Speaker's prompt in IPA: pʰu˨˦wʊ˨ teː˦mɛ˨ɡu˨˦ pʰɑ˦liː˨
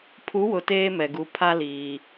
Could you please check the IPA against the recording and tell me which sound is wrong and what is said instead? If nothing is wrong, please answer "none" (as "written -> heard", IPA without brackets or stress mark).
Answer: ɑ˦ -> a˦